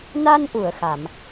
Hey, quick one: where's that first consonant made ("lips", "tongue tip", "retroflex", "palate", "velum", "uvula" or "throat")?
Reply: tongue tip